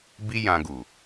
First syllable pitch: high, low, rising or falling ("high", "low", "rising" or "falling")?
high